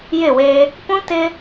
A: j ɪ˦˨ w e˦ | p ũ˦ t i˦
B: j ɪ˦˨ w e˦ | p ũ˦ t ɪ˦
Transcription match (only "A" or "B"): B